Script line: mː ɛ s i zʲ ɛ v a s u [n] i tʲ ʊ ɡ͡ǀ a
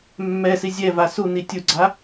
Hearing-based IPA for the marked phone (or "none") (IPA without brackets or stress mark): n